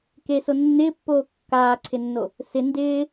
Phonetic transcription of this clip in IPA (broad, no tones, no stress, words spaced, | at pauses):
ke sonːɪːpːoː kːaːǀʰɪnːo | sɪ ndɪː